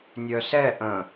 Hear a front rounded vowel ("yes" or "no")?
yes